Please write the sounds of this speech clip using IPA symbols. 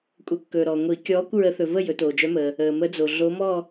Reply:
kʷʼə˨˩˦kːɵː˨ɾɔː˨ ŋʷi˨˩˦kʲɔː˧˥kʷ ɹə˧˥ θɵ˨və˥˧ jɵ˨˩˦toː˨d͡ʒœ˧˥məː˨ | əː˨mə˧˥d͡zo˨ ɮo˧˥ mɔ˥˧

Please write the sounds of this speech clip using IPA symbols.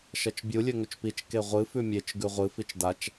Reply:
ʃɐt͡ʃbʲu lʲɵŋɵt͡ʃpit͡ʃ keʁʷɨ fʉmʲet͡ʃ ɡʉʁʷɨ fit͡ʃdat͡ʃ

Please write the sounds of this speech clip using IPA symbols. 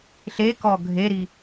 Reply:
ɬekɔ ɡʱeɾi

